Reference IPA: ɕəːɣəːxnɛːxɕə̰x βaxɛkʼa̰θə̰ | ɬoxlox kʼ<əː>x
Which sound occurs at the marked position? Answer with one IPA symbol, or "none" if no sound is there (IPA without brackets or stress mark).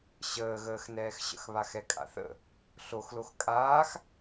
aː